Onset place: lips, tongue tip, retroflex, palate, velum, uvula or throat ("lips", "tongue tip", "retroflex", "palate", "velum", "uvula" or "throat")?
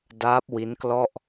tongue tip